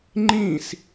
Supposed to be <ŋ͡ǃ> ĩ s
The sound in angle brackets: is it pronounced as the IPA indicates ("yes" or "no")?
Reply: yes